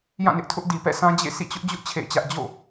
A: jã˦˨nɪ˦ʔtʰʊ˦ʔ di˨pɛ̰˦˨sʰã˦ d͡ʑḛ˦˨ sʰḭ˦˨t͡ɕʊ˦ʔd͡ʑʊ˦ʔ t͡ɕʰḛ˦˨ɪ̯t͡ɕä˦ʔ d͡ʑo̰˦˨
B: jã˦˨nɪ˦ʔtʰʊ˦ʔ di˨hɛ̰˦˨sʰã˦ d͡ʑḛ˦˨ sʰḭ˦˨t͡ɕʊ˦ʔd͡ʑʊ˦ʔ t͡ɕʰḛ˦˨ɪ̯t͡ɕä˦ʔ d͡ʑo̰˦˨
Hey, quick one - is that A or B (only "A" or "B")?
A